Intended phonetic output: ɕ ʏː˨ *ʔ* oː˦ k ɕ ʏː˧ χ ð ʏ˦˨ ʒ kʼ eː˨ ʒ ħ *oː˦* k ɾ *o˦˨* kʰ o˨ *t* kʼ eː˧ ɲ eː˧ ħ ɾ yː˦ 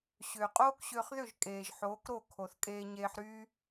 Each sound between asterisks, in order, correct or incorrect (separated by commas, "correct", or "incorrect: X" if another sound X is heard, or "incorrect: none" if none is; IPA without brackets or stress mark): incorrect: qʼ, incorrect: oː˨˦, correct, incorrect: θ